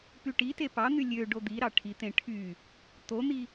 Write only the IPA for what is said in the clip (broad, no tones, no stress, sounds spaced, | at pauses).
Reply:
p y ʈ i t e p ɑ n̪ y lʲ ø ɖ o d̪ i ɾ ɑ ʈʰ i t̪ ẽ ʈʰ y | t̪ o n̪ i